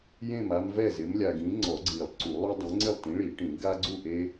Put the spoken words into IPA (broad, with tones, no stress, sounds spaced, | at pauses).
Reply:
j ẽ˥˨ m a˦ m v ɛ˥˨ z ɪ˨˥ m lʲ a˨ ɡ ĩ˨˥ ŋ͡ǀ ɔ˨˩˦ ɡ͡ǀ i˨˩˦ lˠ ǀ u˨˩˦ lˠ u˦ dˤ ẽ˨˥ ŋ͡ǀ ɪ˥˨ lˠ t ĩ˨˥ ɭ i˨˩˦ ʈ ĩ˨˩˦ ɡ a˦ ɡ͡ǀ u˥˨ ʔ e˦